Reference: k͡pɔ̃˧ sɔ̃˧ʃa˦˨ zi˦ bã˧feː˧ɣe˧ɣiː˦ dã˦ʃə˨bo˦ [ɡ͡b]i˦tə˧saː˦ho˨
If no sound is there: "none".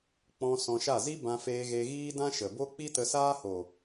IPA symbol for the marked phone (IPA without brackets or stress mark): k͡p